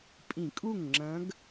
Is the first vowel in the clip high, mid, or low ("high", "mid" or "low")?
high